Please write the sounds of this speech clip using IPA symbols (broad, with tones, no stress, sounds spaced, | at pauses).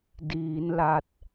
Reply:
d iː˩˦ n l a˨˩ t̚